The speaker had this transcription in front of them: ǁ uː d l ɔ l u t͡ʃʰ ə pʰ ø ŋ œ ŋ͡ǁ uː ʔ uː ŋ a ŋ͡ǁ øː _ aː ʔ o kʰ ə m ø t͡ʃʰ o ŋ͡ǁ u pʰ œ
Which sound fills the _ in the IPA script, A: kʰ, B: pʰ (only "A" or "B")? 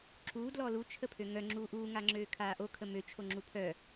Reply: A